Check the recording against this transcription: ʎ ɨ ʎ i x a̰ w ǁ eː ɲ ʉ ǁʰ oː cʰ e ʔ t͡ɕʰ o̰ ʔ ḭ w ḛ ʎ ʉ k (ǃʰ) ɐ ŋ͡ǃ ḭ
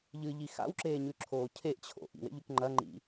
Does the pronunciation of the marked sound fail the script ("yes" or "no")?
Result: yes